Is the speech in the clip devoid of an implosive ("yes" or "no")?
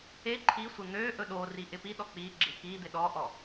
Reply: no